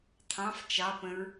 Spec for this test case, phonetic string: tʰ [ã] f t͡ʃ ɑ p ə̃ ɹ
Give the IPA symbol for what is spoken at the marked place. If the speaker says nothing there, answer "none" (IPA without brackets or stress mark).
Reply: ɑ̃